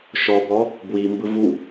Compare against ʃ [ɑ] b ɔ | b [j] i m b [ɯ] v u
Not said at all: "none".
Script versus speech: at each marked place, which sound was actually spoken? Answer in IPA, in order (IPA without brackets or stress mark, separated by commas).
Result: ɔ, w, ɯ